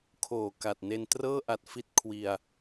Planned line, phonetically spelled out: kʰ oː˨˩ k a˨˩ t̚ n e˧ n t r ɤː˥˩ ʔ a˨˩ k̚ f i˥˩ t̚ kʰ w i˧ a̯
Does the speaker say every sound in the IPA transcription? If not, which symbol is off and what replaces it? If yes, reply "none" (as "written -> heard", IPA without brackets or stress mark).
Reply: k̚ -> t̚